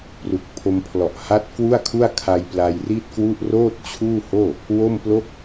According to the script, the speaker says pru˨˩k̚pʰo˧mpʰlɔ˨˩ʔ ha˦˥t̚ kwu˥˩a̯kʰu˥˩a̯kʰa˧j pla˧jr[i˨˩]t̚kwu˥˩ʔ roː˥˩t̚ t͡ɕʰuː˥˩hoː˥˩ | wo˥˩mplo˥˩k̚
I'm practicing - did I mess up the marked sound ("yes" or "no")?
yes